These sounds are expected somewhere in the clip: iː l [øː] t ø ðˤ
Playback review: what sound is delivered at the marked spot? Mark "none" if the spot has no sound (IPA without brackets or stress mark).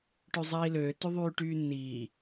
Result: øː